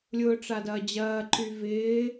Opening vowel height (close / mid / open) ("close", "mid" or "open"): close